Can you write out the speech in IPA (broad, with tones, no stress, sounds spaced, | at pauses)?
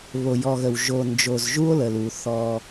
β o˨ j ɔ˨ ɣ ə˨ w ʒ o˨ n d͡ʒ o˨ z ʒ u˦ o̯ l ə˨ l u˨ θ ɔ˦